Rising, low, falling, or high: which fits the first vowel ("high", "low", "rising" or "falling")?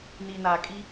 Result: low